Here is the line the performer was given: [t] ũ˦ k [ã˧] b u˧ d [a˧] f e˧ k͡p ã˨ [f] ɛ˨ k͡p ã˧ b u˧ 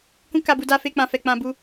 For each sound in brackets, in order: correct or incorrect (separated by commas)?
incorrect, incorrect, correct, correct